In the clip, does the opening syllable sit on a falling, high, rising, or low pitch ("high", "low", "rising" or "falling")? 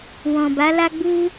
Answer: low